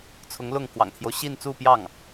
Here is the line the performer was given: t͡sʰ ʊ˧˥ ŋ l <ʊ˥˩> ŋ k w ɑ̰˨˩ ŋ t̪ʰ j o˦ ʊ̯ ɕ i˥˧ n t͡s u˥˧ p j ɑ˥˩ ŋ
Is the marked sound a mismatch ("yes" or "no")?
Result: no